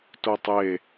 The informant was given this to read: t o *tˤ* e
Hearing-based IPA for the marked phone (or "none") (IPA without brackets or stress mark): tˤ